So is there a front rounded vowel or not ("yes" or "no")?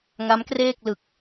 no